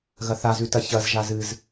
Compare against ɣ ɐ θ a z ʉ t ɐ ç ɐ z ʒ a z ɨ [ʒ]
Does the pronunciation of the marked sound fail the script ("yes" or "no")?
yes